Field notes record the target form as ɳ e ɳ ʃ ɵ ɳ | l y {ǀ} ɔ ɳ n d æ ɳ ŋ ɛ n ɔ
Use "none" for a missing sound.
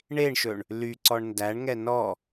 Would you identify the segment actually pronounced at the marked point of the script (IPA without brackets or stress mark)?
ǀ